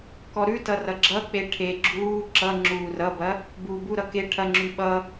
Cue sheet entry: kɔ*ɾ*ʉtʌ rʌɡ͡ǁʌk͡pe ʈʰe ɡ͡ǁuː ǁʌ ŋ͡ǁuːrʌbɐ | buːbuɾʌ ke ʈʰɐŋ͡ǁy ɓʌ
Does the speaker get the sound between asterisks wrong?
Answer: no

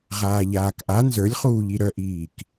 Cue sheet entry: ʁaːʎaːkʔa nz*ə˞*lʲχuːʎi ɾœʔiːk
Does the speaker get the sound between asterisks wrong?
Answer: no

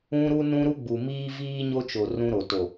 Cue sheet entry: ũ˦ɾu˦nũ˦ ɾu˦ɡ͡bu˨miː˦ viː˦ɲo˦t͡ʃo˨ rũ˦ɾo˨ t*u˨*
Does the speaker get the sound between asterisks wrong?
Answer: yes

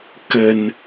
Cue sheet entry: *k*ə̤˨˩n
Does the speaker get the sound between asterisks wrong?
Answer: no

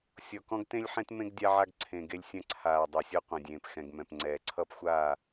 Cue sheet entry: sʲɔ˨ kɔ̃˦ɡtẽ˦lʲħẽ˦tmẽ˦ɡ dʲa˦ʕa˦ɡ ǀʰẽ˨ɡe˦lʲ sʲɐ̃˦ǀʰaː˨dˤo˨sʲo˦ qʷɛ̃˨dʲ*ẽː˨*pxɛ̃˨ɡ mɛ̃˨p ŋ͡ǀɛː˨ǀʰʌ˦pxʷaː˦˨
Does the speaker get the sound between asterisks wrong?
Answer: no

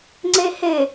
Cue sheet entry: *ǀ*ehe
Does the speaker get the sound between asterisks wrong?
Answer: yes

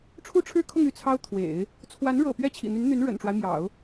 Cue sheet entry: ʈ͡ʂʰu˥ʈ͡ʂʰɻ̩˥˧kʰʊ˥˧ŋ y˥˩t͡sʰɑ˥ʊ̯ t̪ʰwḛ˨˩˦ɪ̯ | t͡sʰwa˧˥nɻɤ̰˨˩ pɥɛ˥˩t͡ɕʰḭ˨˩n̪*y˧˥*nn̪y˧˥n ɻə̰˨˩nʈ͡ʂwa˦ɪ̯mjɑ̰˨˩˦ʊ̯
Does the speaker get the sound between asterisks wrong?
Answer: no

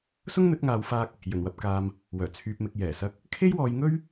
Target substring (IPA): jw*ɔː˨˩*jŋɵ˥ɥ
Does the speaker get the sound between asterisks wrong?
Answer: yes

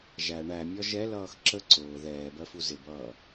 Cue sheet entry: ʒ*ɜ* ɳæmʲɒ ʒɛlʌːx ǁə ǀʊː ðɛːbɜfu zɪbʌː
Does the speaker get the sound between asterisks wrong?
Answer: yes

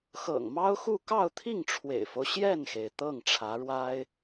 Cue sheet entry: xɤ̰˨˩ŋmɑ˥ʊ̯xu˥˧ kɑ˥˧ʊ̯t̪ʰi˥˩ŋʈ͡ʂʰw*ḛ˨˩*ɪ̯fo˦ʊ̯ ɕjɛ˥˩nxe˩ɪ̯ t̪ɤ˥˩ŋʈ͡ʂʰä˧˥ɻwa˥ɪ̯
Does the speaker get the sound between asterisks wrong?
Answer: no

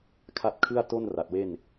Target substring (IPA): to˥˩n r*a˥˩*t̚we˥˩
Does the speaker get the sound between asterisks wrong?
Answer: yes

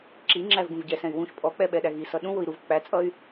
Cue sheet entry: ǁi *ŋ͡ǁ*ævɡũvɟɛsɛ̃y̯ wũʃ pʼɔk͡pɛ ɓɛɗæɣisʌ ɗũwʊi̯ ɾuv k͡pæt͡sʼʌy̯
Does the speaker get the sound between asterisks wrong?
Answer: no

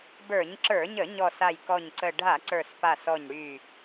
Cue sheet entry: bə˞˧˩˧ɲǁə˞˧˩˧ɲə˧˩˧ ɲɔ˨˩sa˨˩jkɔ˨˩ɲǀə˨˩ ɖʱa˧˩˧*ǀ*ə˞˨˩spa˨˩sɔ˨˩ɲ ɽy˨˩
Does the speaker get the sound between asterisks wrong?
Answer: no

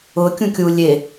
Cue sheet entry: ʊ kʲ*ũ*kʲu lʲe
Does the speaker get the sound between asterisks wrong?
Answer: no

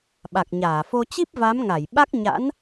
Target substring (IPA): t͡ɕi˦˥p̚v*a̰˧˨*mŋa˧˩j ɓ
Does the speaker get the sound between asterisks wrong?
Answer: yes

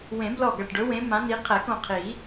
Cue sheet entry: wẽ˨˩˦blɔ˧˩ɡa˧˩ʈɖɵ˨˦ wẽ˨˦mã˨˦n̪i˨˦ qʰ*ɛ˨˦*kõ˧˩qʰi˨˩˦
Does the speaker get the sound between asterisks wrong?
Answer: yes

